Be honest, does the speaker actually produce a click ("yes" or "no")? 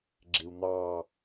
yes